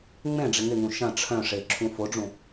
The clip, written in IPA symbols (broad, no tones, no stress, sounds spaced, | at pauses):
ŋ͡m ẽ ɖ͡ʐ ɪ ŋ ɪ ŋ ũ ʃ ɐ̃ ʈ͡ʂʰ œ̃ ʂ e ǁʰ ũ f o ɖ͡ʐ ũ